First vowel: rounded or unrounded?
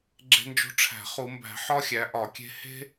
unrounded